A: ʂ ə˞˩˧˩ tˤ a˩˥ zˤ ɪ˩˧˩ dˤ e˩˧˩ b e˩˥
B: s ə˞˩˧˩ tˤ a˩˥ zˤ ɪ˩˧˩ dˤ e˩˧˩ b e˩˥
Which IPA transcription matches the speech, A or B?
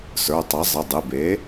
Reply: B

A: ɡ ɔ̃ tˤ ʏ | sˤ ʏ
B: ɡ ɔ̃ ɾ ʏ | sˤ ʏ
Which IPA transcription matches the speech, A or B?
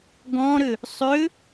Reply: B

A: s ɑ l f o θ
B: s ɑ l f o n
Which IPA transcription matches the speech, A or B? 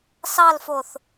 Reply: A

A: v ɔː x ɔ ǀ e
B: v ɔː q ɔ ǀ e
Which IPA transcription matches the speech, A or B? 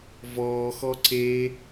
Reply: A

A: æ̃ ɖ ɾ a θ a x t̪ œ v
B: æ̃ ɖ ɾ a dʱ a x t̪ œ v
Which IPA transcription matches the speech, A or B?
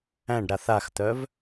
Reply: A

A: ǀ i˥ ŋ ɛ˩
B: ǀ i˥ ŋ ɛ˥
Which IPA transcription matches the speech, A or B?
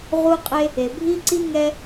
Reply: B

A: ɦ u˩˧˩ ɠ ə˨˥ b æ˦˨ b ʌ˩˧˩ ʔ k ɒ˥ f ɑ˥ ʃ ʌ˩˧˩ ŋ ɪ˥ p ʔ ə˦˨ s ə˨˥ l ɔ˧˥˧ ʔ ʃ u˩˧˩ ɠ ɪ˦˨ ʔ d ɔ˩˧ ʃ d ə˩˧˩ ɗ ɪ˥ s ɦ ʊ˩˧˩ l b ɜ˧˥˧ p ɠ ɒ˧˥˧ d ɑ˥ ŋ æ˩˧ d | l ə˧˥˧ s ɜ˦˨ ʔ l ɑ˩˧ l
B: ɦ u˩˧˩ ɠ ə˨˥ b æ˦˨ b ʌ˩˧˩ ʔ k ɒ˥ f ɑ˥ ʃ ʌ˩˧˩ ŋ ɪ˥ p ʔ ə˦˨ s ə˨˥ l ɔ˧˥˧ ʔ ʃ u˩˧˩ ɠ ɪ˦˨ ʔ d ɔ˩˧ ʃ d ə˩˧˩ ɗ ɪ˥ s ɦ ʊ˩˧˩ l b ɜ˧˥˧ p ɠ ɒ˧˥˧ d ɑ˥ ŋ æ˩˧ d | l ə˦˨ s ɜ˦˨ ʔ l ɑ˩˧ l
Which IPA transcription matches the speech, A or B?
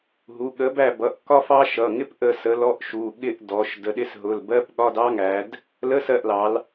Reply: A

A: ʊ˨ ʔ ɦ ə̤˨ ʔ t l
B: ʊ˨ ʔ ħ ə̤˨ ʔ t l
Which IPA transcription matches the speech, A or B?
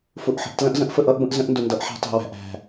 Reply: B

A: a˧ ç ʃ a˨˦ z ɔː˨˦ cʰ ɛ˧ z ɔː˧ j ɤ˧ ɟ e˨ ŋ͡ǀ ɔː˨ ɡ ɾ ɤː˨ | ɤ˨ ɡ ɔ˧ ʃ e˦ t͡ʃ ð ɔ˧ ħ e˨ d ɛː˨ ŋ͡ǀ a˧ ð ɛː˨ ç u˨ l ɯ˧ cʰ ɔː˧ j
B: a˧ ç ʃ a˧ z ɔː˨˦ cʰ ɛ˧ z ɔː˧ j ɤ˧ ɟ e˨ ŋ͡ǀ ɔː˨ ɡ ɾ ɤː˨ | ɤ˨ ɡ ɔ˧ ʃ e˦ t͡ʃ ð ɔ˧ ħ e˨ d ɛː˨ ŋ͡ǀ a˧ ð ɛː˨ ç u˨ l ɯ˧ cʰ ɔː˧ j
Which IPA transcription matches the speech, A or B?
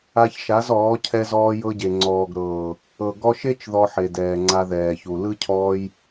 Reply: A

